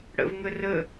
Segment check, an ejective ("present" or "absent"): absent